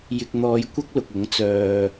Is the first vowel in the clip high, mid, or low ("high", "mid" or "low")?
high